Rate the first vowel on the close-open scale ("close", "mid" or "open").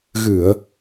close